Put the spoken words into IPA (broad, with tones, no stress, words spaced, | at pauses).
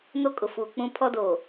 no˦kʼʊ˨fuː˨ k͡pũ˦ pʰɔ˦doː˨